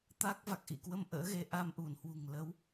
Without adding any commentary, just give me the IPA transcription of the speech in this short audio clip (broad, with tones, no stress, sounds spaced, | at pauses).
t̪ a˦˥ k̚ v a˨˩ k̚ ʔ ḭ˧˨ k w ə˧ m ʔ ə̰ː˧˥ ɣ e˨˦ ʔ a˧ m ʔ u˧˩ n h w ṳ˨˩ ŋ l ə˨˦ w